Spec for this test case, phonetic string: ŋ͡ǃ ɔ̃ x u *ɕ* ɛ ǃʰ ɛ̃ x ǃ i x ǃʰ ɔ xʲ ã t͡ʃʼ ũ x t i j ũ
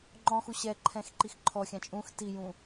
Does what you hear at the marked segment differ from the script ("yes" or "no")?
no